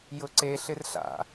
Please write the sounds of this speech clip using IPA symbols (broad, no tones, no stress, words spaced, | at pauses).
jʊǀe ɬɪrɬa̰